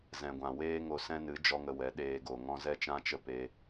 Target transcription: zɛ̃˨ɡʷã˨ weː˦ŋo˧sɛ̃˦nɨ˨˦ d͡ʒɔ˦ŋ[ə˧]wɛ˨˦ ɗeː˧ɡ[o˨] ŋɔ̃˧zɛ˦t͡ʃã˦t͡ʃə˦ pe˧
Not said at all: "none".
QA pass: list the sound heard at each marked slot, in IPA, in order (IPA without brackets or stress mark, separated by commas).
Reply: ə˧, o˨